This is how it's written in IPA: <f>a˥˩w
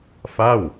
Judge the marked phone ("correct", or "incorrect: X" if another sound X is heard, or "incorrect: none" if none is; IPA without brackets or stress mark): correct